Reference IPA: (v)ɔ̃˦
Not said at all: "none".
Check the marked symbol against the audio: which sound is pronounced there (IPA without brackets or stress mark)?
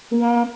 w